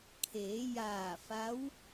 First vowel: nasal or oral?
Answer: oral